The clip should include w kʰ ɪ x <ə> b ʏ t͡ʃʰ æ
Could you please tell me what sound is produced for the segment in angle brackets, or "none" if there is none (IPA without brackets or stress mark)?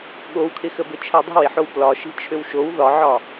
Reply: ə